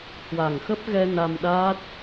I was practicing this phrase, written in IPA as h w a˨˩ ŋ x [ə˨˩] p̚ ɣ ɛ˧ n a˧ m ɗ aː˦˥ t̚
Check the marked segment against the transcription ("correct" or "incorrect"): incorrect